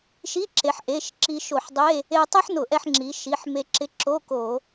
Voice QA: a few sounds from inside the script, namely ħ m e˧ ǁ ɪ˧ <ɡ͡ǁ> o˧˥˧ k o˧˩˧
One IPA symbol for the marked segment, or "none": ǁ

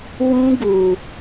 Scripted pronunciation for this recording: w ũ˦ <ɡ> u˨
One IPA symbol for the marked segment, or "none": ɡ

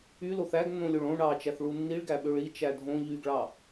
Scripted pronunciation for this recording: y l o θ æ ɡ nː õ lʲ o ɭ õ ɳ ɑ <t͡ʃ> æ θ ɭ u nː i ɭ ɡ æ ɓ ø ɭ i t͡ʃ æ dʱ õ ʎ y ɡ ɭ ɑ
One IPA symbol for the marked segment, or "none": t͡ʃ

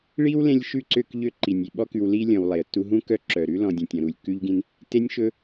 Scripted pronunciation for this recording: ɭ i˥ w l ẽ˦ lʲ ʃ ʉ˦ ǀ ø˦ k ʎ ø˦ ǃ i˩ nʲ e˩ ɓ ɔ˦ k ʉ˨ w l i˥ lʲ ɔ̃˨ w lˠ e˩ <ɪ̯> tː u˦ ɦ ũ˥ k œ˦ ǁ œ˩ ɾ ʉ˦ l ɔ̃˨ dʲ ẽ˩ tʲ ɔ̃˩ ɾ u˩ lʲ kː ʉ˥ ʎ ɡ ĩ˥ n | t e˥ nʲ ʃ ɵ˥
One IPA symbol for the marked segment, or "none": ə̯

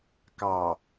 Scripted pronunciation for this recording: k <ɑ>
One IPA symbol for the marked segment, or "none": ɑ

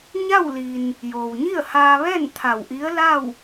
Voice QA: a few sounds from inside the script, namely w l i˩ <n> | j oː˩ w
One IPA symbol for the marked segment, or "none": n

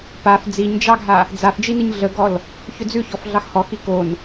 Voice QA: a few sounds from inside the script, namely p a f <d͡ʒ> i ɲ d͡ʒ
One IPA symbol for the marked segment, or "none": d͡z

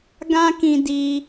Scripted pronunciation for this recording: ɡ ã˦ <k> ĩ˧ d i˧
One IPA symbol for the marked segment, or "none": k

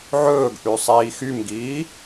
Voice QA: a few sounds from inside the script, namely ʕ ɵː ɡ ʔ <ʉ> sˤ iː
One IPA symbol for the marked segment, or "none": ʉ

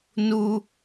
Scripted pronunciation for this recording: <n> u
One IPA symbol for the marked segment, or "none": n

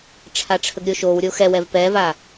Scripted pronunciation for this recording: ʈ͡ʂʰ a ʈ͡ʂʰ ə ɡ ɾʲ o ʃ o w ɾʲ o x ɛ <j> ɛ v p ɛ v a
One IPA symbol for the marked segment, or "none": w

